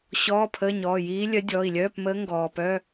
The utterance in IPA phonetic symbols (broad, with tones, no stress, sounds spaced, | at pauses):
ɕ ɔː˧˥˧ pʰ əː˧˥˧ ɲ ɔː˩˧˩ j iː˧˥ lʲ œ˧˥ dʲ ɔː˩˧˩ i̯ lʲ œː˧˥˧ p m əː˧˥ ŋ ɡ ɔː˩ p œ˧˥˧